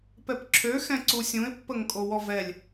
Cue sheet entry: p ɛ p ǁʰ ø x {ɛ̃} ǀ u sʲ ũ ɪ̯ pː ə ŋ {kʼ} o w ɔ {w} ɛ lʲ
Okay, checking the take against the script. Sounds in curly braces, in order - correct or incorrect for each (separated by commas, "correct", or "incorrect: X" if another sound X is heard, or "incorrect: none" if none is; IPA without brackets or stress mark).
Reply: correct, correct, incorrect: v